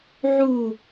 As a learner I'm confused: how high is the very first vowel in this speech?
high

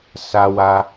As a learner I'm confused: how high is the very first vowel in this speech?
low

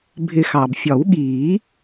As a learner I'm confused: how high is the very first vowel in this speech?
high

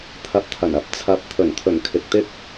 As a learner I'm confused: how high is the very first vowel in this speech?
low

